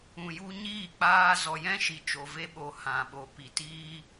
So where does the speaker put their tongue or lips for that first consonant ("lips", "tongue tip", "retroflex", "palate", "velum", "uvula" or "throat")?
palate